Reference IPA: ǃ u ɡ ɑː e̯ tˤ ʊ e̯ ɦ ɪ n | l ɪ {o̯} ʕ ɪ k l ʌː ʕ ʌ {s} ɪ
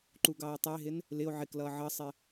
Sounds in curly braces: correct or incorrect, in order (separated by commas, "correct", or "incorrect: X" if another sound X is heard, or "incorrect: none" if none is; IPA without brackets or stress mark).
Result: correct, incorrect: sˤ